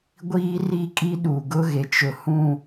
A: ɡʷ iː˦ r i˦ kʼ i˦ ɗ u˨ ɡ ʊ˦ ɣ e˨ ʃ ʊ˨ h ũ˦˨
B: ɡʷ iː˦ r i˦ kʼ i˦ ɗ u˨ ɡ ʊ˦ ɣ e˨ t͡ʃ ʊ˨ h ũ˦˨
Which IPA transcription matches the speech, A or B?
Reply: B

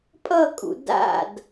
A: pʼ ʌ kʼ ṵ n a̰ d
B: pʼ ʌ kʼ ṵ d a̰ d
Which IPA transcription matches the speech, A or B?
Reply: B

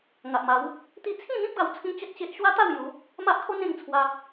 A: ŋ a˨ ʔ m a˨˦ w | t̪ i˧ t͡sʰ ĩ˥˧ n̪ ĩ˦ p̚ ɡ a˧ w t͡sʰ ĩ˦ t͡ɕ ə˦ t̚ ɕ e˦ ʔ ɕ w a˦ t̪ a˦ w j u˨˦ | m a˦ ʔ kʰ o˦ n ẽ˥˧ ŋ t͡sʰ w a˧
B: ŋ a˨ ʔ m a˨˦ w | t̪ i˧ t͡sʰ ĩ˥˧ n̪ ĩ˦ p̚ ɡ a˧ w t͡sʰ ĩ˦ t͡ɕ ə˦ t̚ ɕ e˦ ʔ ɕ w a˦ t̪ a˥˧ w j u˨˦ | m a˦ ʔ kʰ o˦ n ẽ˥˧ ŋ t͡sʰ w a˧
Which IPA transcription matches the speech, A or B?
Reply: B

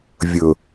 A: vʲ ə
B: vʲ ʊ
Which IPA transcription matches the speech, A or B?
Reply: B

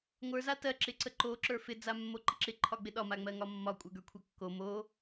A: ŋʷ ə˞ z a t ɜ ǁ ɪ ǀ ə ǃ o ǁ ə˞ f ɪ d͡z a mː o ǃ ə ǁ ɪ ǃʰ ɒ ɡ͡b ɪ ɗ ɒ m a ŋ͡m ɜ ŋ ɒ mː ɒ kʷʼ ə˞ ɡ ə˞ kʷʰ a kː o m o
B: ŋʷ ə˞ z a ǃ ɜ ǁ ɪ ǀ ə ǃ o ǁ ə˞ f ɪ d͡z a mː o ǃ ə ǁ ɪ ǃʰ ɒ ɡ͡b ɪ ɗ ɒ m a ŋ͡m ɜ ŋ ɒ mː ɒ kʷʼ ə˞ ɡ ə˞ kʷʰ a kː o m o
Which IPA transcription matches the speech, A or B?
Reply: A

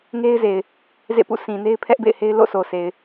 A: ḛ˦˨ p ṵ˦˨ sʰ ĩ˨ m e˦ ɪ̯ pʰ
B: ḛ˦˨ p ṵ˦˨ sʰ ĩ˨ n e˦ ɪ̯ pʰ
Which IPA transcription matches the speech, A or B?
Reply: B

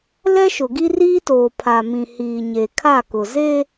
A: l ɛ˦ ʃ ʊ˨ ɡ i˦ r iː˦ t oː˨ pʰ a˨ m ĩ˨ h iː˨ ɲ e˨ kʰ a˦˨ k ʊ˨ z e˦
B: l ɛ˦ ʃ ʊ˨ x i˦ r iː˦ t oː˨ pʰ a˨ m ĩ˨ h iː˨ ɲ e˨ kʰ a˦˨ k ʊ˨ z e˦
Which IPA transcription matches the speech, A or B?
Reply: A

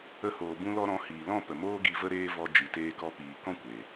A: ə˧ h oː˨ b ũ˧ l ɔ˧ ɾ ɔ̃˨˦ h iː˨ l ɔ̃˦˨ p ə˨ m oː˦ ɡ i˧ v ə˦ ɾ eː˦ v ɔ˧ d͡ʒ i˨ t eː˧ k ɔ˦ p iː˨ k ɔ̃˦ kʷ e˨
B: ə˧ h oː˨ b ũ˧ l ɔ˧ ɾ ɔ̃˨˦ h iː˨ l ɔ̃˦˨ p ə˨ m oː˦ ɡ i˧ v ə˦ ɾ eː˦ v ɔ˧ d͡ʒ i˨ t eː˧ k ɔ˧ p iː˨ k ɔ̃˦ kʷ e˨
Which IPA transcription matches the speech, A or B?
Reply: B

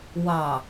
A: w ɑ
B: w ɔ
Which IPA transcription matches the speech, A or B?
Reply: A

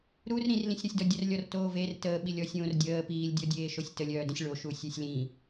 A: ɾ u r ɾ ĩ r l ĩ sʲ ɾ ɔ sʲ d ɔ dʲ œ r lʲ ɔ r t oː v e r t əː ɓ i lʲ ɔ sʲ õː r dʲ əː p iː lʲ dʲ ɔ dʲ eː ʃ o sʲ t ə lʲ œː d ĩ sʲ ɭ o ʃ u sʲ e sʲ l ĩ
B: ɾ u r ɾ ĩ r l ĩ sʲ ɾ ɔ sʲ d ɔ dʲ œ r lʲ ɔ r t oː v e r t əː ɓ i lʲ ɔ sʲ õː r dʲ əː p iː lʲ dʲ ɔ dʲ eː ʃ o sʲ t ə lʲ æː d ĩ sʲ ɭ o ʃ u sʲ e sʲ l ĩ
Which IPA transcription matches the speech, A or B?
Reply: A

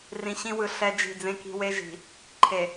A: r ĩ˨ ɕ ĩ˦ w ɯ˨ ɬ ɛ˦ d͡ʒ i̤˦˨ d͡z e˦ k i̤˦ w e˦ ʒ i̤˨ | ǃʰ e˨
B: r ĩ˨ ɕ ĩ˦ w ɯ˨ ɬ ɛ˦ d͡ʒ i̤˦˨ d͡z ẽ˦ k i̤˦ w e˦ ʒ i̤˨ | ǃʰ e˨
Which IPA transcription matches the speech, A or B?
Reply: B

